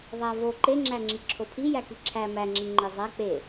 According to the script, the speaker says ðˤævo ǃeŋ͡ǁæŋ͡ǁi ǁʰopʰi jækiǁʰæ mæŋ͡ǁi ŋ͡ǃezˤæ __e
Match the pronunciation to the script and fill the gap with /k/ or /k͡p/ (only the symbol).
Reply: k͡p